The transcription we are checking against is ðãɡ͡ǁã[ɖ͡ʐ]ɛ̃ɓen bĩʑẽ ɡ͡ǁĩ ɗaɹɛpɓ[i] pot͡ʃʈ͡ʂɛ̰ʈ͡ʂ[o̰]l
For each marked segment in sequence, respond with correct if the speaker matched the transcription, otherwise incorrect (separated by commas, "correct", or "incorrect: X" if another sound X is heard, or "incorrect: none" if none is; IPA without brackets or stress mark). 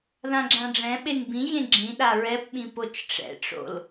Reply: correct, incorrect: ĩ, correct